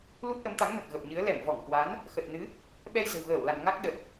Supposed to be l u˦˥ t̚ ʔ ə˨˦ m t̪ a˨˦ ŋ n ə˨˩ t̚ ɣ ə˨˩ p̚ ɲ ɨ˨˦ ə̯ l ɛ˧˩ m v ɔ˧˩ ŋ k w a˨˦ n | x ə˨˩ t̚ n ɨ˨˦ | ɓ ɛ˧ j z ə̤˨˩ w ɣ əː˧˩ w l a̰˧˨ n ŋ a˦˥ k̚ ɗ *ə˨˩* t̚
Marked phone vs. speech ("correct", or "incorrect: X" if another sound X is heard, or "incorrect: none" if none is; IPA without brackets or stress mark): correct